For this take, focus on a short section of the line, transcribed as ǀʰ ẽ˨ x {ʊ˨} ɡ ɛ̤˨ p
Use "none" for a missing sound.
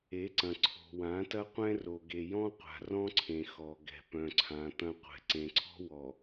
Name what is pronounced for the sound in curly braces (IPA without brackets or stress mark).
ɔ˨